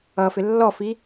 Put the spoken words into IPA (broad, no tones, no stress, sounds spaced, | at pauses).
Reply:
ʌ f ɪ lː ɔ f i